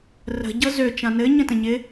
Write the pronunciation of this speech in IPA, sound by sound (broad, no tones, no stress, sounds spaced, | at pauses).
r ə̤ ɟ ɤ z ø t͡ʃ ã n ɘ ɲ ə̃ t ə̃ ɲ ɪ